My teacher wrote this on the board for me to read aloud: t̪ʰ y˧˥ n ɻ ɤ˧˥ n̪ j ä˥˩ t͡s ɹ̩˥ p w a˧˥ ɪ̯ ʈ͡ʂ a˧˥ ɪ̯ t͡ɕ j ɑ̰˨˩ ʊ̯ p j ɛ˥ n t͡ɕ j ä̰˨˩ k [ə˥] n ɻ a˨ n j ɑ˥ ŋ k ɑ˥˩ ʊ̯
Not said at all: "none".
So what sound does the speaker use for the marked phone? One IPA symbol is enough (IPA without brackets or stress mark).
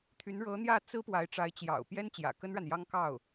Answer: ə˥